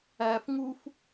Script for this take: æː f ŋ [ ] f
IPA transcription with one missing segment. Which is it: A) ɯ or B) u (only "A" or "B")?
B